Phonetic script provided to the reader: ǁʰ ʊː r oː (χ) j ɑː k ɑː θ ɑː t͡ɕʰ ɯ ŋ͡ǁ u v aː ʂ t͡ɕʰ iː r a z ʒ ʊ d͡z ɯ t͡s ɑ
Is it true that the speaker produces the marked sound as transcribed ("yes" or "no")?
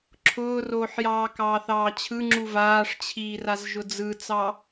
no